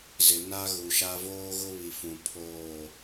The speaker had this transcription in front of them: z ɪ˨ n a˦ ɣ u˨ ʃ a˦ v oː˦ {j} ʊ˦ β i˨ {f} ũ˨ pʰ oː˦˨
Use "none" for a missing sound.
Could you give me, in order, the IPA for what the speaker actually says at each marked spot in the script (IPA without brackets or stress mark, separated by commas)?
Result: ɣ, f